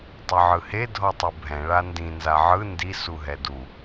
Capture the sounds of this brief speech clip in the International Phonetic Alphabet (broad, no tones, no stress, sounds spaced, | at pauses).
tˤ ɯ ʕ ɯ h e dʱ ɔ tˤ u bʱ ɛ̃ ɭ a n d ĩ n z a ʕ ɯ n d i s u ɦ ɛ d u